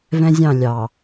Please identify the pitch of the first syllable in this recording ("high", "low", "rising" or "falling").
high